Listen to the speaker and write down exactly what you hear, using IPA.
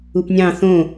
u p nʲ ɑ̃ θ õ

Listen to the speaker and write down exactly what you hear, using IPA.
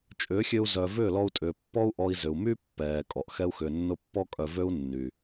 t͡ʃʼ ʏː˨˦ xʲ ø˧ u̯ z œ˨ v ʏː˦˨ l ɔ˧ u̯ tʼ ʏː˨ pː ɔ˦ u̯ ʔ ɔ˧ i̯ z ʏ˨ u̯ m y˦ pː ɛː˨ kʼ ɔ˨ ʔ x ɛ˦ u̯ x ʏː˧ nː ʊ˦ pː ɔ˦ kʼ œ˧ v ø˦ u̯ nː y˨

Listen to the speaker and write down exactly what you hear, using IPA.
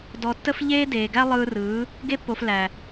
d ɔ˨ tː ə˧ f ʎ eː˦ d eː˨ ɡ æ˦ lˠ ɯː˧ r ɯː˨˦ | ɡ e˧ pː o˨ f l æ˨

